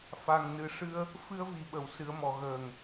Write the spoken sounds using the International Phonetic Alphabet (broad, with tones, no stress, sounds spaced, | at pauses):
f a˨˩ ŋ n ɨ˨˩ ʂ ɨ˧ ə̯ | f ɨ˧ ə̯ v i˨˩˨ ɓ ə˨˩˨ w s ɨ˨˩˦ ə̯ m ɔ˨˩˨ ɣ əː˨˩ ŋ